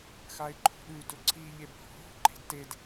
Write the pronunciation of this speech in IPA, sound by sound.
x a ɪ̯ ǃʰ o̤ ɗ ʉ d ɵ ǀʰ i ʎ e b h o̤ ɦ o̤ ǃ e̤ d t e d

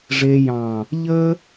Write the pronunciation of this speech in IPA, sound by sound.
ʐ e˧ j ɑ̃˨ | ʎ ə˦

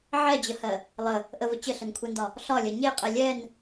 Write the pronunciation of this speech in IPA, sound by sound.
ʕ ɛ d͡ʑ ə h ɜ | lˠ ə | ʔ ə v ə t͡ɕ ə ɬ ə n kʷʰ ɛ n d ɒ | ɬ ɒ lʲ ɜ ɲ e qʼ ɛ lʲ ɛ n

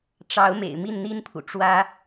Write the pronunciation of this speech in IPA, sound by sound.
ʈ͡ʂ ɑ˨˦ ʊ̯ m ḛ˨˩ ɪ̯ m i˥˨ n n̪ i˦ n pʰ ṵ˨˩ ʈ͡ʂ w ä˦

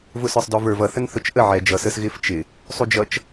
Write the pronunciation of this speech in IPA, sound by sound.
v ʊ s ə˞ sˤ d ɔ v ə˞ v ʌ θ ə n θ ʊ t͡ʃ ʔ ə ʕ ɛ d͡ʒ ʌ s ə s ɣ ɪ f t͡ʃ ɪ | sˤ u d͡ʒ ʌ t͡ʃ

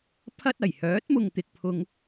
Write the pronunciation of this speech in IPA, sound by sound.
pʰ ɐ˥ t̚ ɐ˨˩ j h œː˨˥ t̚ m ʊ˨ ŋ t̪ ɪ˨ k̚ pʰ ʊ˧ ŋ

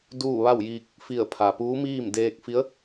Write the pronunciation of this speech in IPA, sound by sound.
d uː˥˨ ʋ a˥˨ w j iː˧ k̚ | f i˧˩ ə̯ pʰ a˩ p uː˧˥ m iː˥˨ m d eː˧ k̚ f i˧˥ ə̯

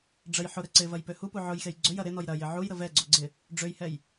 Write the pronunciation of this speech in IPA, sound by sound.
ɖ͡ʐ ə j ħ ʊ ɾ ɛ ǀ ɪ v ɐ j p ø h u p u ʕ ʊ j x e j ɡ͡ǀ ø j ɐ ɾ ɪ n ɔ j ɾ ɐ j ɪ ʕ u j ɾ ə v ɛ ɡ͡ǀ o ɡ͡ǀ ɪ | ɖ͡ʐ ø j h ɛ j

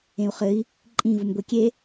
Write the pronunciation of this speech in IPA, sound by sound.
ẽ u̯ χ ɘ i̯ | ǃʼ ĩ v u m ɡʷ e kʲ e

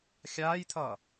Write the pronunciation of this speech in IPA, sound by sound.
xʲ aː j t̪ʰ ʌː

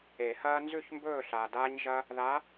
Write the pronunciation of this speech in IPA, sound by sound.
e˨˩˦ h ɐː˥ n z ʉ˦˨ ç m b ɵː˦˨ ɬ a˨ d aː˥ ɲ ʒ ɐ˥ | ð a˧˥

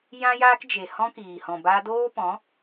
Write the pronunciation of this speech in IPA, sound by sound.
j ã˦ j aː˦ k d͡ʒ e˨ h ɔ̃˦ k iː˨ h ɔ̃˨ b aː˧ d oː˦ p ɔ̃˨˦

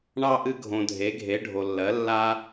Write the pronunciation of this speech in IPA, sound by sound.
ɳ ɑ˥ ʔ ɨ˥ ɡʱ õ˧ dʱ e˧˥ ɡʱ e˧˥ ɖʱ o˧ lː ɜ˧˥ lː a˥

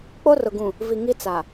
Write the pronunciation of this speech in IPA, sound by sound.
k͡p o˦ r ʊ˨ ɡ ũ˨ | v i˨ ŋ i˦ t͡s a˨

